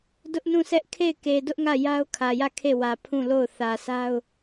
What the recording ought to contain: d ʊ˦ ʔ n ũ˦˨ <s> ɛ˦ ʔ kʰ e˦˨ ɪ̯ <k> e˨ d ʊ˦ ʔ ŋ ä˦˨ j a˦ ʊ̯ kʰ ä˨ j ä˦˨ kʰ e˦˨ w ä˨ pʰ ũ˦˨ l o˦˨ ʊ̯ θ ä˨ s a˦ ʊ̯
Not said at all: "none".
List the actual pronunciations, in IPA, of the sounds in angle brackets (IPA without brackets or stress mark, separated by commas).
s, k